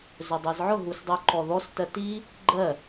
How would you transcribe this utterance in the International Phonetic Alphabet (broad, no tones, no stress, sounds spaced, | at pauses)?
z ɵ dˤ ɜ z ʕ ʊ ɦ u s dˤ u ǃ ɔ ð ɔ s t ɜ t i | ɡ͡ǃ ɜ